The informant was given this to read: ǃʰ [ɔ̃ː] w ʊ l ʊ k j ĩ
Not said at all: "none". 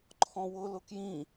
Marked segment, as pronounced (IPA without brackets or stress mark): ɔ̃